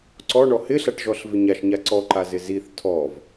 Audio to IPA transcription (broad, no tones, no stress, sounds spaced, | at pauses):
ǀ ɔ ɳ ɔ h ɪ ɬ a ʈ ʒ ɔ ɬ v ɪ ɲ a ʃ ɲ a ǀ ɔ ǃ a z ɪ z i θ tʰ ɔ v